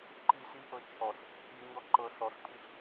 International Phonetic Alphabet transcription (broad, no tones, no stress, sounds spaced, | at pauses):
ǃ i s i ʔ ɤ t͡ʃʰ ɔ ɬ | ʔ i ɲ ɔ ǃ ɤ ɬ ɔ ɬ pʰ i ɬ